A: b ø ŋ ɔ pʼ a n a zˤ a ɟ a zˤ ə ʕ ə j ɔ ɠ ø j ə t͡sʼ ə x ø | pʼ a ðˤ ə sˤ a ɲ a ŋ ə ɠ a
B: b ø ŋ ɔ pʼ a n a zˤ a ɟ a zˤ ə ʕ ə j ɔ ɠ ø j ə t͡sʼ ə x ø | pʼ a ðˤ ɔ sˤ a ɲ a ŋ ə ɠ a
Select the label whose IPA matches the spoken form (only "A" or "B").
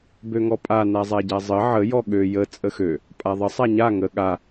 A